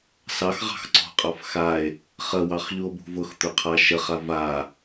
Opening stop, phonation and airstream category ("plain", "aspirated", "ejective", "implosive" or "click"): click